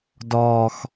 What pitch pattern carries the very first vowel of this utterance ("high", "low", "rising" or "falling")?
high